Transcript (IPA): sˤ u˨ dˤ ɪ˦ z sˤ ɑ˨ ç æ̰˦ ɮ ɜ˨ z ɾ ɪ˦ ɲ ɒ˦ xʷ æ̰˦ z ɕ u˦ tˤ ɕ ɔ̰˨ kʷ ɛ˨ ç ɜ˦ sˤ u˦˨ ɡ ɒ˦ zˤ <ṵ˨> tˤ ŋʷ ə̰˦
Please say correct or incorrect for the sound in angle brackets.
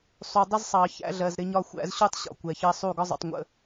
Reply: correct